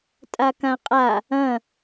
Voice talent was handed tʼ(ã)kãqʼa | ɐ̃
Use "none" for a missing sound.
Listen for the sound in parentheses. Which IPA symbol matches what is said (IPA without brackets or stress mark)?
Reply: a